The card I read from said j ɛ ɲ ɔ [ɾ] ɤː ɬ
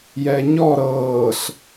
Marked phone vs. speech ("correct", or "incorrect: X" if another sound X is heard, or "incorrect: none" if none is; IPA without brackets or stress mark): correct